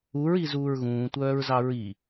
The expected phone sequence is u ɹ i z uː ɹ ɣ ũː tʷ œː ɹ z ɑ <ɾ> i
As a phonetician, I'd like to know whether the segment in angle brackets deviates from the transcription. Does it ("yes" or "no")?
yes